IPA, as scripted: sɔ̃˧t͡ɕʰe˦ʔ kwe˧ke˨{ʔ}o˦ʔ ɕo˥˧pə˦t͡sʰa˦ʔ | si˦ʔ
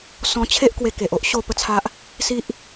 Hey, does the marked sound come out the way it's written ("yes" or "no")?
yes